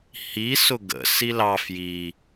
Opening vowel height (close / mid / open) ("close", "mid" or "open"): close